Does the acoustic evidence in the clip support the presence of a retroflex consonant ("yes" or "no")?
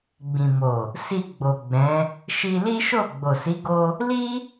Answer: no